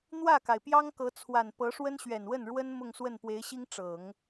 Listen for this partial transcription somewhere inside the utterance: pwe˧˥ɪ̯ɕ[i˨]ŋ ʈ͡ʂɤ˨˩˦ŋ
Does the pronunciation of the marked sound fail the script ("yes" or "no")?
yes